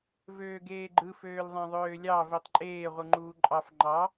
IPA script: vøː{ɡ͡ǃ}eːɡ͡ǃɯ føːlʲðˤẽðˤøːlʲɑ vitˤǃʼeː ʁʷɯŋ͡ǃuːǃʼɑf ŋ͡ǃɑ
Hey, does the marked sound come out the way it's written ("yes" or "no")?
no